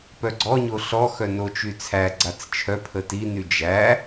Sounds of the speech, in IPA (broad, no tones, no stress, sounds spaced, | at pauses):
p œ ɡ͡ǀ ɔ ɲ o ɬ ɔ x œ n o t͡ʃ y t͡sʰ æ ɡ͡ǀ a t͡s t͡ʃʰ œ pʰ ə t i n y d͡ʒ æ